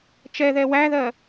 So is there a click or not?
no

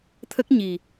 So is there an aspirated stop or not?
yes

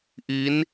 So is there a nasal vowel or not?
no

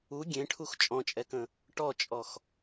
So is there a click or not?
no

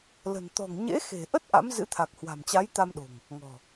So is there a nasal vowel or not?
no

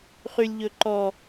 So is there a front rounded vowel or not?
yes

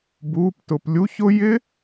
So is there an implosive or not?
no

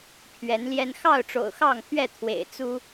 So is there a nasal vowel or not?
no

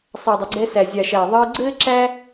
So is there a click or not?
yes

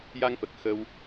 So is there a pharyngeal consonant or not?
no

